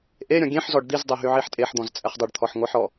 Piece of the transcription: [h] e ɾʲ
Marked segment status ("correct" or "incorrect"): incorrect